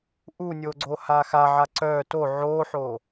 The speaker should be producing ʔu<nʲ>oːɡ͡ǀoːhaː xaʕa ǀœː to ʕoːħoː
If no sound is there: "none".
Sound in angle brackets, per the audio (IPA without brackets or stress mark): nʲ